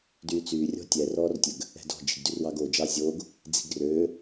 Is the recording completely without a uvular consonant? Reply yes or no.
yes